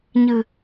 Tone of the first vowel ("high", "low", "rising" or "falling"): low